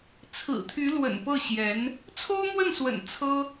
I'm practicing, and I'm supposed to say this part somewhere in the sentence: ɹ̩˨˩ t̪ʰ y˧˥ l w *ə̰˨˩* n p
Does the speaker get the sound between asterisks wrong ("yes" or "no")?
no